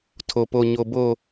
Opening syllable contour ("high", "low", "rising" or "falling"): low